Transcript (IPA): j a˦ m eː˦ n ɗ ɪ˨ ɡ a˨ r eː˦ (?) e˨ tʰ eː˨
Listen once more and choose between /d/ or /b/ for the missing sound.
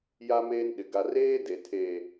d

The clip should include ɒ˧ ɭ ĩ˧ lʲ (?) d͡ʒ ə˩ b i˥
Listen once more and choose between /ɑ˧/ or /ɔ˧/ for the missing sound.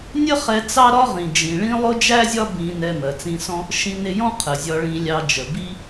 ɑ˧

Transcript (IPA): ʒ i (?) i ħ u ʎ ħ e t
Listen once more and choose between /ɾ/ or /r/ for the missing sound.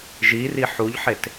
r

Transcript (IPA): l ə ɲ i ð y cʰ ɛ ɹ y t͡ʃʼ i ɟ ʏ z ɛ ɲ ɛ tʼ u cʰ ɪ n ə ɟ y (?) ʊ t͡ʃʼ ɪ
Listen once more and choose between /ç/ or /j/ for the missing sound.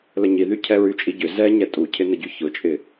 ç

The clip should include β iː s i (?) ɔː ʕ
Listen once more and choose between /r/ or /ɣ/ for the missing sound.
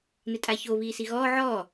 ɣ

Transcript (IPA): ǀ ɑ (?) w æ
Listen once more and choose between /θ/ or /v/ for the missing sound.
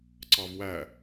v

